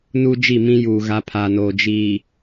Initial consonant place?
alveolar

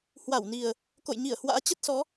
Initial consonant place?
glottal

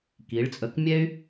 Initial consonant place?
velar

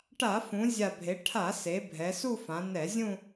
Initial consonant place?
retroflex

